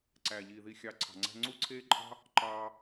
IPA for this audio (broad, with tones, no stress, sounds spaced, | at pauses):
ǀ æː˨ ʎ iː˨ ð i˧ xʲ ɑ˧ ǀʰ ɑ̤˨ ŋ͡ǀ æ̤˦ ŋ͡ǀ u˦ ǀʰ eː˦ ǃʼ ɑ̤˦ | ǃ ɑː˧